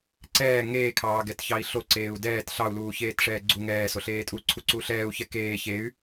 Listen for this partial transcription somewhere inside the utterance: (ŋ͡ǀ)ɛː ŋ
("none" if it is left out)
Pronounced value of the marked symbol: ǀ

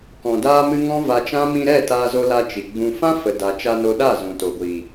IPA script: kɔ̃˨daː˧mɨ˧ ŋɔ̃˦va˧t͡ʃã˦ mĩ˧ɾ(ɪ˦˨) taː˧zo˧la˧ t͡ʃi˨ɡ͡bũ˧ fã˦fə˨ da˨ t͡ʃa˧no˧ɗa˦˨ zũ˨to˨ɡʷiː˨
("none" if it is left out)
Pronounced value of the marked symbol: ɛ˦˨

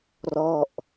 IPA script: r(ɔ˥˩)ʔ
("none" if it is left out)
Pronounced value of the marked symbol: ɔ˥˩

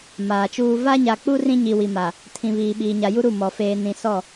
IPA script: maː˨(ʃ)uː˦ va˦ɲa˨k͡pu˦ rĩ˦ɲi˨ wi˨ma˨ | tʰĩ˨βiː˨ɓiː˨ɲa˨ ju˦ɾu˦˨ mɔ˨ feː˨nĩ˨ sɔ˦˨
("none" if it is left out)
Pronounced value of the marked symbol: t͡ʃ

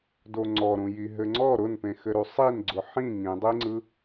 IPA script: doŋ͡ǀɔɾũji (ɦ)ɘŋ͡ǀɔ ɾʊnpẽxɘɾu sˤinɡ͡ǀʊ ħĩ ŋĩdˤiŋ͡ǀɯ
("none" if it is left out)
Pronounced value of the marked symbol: ɦ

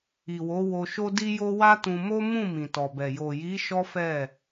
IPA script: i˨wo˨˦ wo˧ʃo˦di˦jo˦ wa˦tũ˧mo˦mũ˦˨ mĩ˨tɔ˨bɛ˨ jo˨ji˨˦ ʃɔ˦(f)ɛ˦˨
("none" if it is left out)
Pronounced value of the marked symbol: f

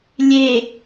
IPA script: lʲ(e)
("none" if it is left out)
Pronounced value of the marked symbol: e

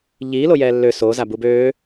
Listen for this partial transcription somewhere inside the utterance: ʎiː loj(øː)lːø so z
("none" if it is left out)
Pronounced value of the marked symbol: ɛː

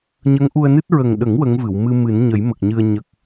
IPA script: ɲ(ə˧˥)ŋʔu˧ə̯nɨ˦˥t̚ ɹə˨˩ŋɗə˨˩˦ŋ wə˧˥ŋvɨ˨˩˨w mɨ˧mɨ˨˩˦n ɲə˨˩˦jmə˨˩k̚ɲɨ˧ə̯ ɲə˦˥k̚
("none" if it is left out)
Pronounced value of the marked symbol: ə˧˥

